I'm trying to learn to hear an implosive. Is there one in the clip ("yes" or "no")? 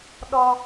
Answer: yes